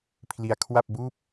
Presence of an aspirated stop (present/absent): present